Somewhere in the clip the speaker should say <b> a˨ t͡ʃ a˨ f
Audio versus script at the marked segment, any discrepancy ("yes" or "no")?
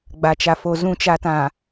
yes